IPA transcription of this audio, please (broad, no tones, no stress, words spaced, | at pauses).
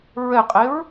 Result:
ɹɛqʼeɹ